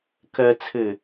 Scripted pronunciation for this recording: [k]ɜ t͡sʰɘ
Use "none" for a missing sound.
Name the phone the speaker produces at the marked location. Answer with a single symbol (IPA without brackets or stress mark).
k